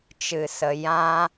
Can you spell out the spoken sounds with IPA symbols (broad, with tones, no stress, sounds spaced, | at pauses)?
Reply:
t͡ʃ ɨ˨ s ə˨ j ã˦